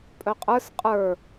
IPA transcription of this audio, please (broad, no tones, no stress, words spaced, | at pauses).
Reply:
pʼœqʼə˞s qʼə˞